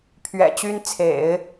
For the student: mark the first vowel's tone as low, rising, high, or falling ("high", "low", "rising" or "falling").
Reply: low